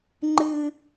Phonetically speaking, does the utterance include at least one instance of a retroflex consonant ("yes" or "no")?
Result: no